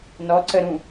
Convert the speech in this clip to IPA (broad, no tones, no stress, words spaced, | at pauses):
nɔǀə ɾũ